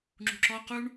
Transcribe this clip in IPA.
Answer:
ŋ͡ǁ ṳ ǁ ɔ q u ɳ

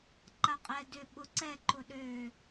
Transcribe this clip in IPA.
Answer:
ǃ a qʼ ɛ d ʏ ɓ ʊ ǀ ɛ ǃ ʊ ɗ ø

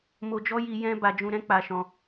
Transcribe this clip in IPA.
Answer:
m o˧ d͡ʒ ɔ˦ j i˧ j ɛ̃˦ b a˧ d͡ʒ ũ˧ ɾ ɛ̃˦ k͡p a˧ ʃ ɔ̃˧

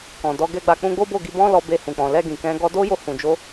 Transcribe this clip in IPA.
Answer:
k ɔ̃˨ d ɔ˨˦ ɡ ɛ˦ ɡ͡b a˧ k͡p ũ˧ ɡ͡b o˦ b o˦˨ ɡ i˧ b ɔ̃˦ l ɔ˧ b e˧ h ũ˨ k͡p ɔ̃˨ l ɛ˧ ɡ ĩ˨ k ɛ̃˨˦ ɡ ɔ˧ d o˦ j o˧ h ũ˨ d͡ʒ o˧

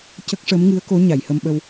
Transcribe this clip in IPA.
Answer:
c ə˦˥ k̚ ʂ ə˧˥ m ŋ ɨ˧˥ ə̯ k o˧˥ ɲ a˨˩˨ j h ə˧ m ɓ ə˧ w

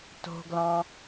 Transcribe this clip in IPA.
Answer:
t o̤ ɡ l ɑ̃

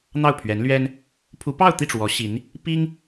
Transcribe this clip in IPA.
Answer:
n̪ ɑ˥˩ ʊ̯ pʰ ɥ ɛ˧˥ n l ɥ ɛ˥ n | pʰ u˧˥ p ɑ˥˧ ʊ̯ t̪ i˥˩ ʈ͡ʂ w ɔ˧˥ ɕ i˧˥ n | p i˥ ŋ

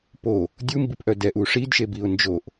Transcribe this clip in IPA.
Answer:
p o | dʲ u m b i p ʔ œ d ɛ ʔ u ʂ i d ʃ e b i ʊ̯ n d͡ʒ o ʔ

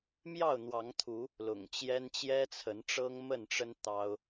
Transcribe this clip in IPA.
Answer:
m j ɑ˥˨ ʊ̯ n̪ w ɑ˨˦ ŋ t̪ʰ u˨˦ | l ʊ̰˨˩ ŋ t͡ɕ j ɛ˦ n t͡ɕ j ɛ˦ t͡sʰ ə˨˦ n ʈ͡ʂ ɤ˦ ŋ m ə˥˨ n ʈ͡ʂ ə˦ n t̪ ɑ˦ ʊ̯

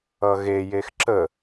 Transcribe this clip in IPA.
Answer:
ʌ ɣ e j e x ǁ ə

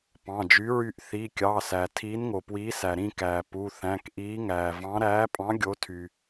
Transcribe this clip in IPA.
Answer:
p ɑ̃˩˧˩ d͡ʒ y˨˥ ɹ y˦˨ ʔ θ i˩˧˩ kʲ ɑ˩˧˩ s æ˩ tʰ iː˨˥ n ŋ o˩ p w iː˨˥ s æ˩ ɾ ĩ˦˨ k æː˩ p u˩˧˩ θ æ̃˩˧˩ k ʔ iː˨˥ ŋ æː˩ v ɑ̃˨˥ ɾ æː˨˥ pʼ ɑ̃˨˥ ɡʲ o˨˥ tʰ y˩

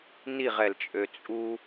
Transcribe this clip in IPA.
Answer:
n i ʁ ɛ l t͡ʃʼ ø t͡sʼ u

